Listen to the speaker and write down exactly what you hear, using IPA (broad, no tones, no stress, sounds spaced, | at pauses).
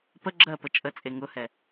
p ə ɡ͡ǁ ɜ p ə t͡ʃʼ ə t͡sʼ e ŋ ʊ h ɛ